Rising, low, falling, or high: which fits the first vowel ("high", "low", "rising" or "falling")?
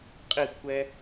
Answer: falling